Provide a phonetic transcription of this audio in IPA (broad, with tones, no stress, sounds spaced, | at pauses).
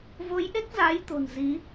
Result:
v o˨˦ j ʔ e˦˥ k̚ z aː˨˦ j t̪ o̤˨˩ n z i˨˦